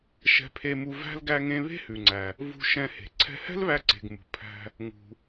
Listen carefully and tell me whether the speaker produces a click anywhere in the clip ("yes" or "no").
yes